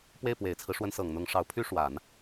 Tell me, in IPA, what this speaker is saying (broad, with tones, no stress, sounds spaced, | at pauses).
p w e˥˩ ɪ̯ p w e˨˩ ɪ̯ t͡sʰ ɹ̩˦ ʂ w ə˧˥ n s ɤ˨˩ ŋ n̪ ʊ˧˥ ŋ ʂ ɑ˧˥ ʊ̯ pʰ y˥ ʂ w a˨˩˦ n